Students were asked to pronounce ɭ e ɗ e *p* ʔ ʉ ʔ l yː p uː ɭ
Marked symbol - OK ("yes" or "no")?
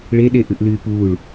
no